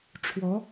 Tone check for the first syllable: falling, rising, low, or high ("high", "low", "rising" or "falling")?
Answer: rising